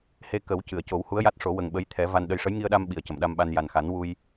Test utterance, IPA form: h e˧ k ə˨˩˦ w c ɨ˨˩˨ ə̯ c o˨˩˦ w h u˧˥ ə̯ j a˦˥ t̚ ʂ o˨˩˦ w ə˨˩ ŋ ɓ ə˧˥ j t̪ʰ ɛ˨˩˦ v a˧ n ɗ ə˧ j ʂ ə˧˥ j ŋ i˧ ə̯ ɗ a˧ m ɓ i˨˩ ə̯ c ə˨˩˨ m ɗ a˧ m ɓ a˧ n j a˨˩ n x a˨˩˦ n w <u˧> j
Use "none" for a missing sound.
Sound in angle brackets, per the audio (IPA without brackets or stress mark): u˧